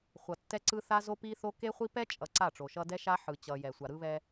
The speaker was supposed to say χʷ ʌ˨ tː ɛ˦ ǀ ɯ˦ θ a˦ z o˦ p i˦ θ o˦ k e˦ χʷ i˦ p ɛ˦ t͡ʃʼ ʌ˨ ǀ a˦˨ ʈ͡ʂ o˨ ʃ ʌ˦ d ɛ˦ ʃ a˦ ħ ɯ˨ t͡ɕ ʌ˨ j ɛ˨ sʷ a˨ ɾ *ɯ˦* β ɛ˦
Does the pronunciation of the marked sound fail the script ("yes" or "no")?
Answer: no